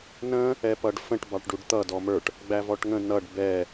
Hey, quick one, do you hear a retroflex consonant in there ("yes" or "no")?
yes